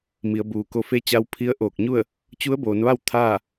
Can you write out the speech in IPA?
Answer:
m i˩˧ ə̯ b uː˩ k o˧ f e˧˥ t͡ɕ a˧ w pʰ i˧˥ ə̯ ʔ oː˧˩ k̚ ɲ u˥˨ ə̯ | t͡ɕ u˧˥ ə̯ b oː˩˧ n ʋ a˥˨ w t̪ʰ aː˥˨

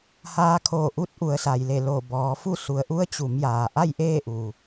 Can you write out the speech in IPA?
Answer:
h aː˧˥ kʰ oː˧˩ ʔ u˧˥ t̚ ʔ u˩˧ ə̯ s a˩ j l e˧˩ l oː˧˩ b ɔː˩˧ f u˥˨ s u˩˧ ə̯ ʔ u˧˥ ə̯ t͡ɕ u˩˧ m j aː˩ ʔ a˥˨ j ʔ eː˥˨ ʔ u˩

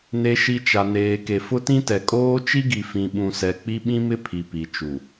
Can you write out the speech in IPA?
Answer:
n e˨ ʃ i˨ t͡ʃ a˨ n eː˨ k e˨ f ʊ˦ t ĩ˦ t ɛ˨ kʼ oː˦ t͡ʃ i˦ ɡ i˨ f ĩ˨ ɓ ũ˨ s ɛ˨ k͡p i˦ ɓ ĩ˦ m ɪ˦ pʰ i˨ p i˨ t͡ʃ u˨

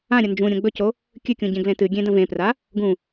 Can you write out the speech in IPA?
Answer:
ã ɾʲ ɐ n d͡ʒ ũ ɾʲ õ ɡ͡b ɵ c o | kʲ ɨ kʲ ũ ɟ ẽ ɡ l ẽ t ɨ ɡʲ ẽ d ɐ̃ v ẽ p r a | ɡ ũ

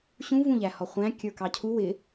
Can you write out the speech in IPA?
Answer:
ɕ ũ v ũ ʎ æ h ɔ χʷ æ̃ kʲ ə˞ k ɑ cʰ u w ɪ

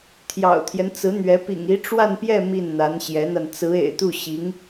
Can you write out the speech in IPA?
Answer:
t̪ʰ j ɑ̰˨˩ ʊ̯ t̪ʰ j ɛ˦ n t͡s ɹ̩˧˥ n̪ ɥ ɛ˧˥ p ḭ˨˩ ŋ i˧˥ ʈ͡ʂ w a˥˧ n p j ɛ˥˧ m i˥˩ n n̪ a˧˥ n ɕ j ɛ˧˥ n̪ a˧ n t͡s ɹ̩˧˥ ḛ˨˩ ɪ̯ t̪ u˥˩ ɕ i˧˥ ŋ

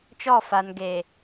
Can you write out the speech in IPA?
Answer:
t͡ʃ ɔ˦˨ f a˨ n ɡ e˨

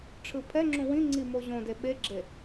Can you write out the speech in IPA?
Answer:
ʈ͡ʂʰ ɯ pʰ ɛ ŋ͡ǁ ũ w ĩ ŋ͡ǀ i m o ʑ õ d e ɓ e ɡ͡ǁ e

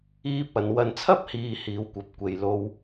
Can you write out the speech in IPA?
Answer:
iː˥ p̚ ɐ˨˧ n w ɐ˨ n t͡sʰ ɐ˥ p̚ h iː˨ h iː˨ w kʷ ɐ˨ p̚ kʷ e˨ j l o˧ w

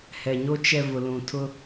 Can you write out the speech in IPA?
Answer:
h ɛ˨ ɲ o˦ t͡ʃ ɛ˨ v ʊ˨ l ũ˨ tʰ ʊ˦

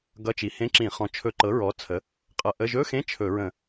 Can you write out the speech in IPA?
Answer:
ɡ ʌ˧˥˧ t͡ʃ i˩˥ h ẽ˧˥˧ ǁ ĩ˧˩˧ χ ɔ̃˩˥ t͡ʃʰ ɵ˧˩˧ ǃ ɤ˩˥ ɹ ɔ˩˥ t͡sʰ ə˩˥ | qʼ ʌ˧˩˧ ʔ ə˧˥˧ ʒ ɵ˧˥˧ x ẽ˧˥˧ t͡ʃʰ ɵ˧˩˧ ɹ ə̃˧˩˧

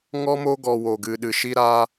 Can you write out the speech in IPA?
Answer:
ŋ ɔ˧ m o˧ ɡ ɔ˨ w o˨ ɡ ɨ˨ ɗ ɨ˨ ʃ i˧ ɾ a˧

